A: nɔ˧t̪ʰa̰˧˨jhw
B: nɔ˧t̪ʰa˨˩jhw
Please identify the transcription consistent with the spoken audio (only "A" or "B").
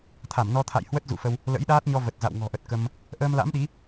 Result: A